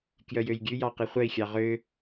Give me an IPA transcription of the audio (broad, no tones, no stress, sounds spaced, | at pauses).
k j œ j ø j ɡʲ ʉ j ɑ q i χʷ œ i̯ xʲ ɑ ʁ ø